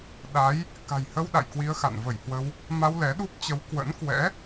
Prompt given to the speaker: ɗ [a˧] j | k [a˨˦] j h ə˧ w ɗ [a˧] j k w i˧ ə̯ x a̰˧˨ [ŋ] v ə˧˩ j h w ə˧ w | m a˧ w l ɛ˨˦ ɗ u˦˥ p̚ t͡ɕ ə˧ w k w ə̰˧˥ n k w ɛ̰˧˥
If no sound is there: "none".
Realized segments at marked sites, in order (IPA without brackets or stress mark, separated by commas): a˨˦, a̤˨˩, a̰˧˨, n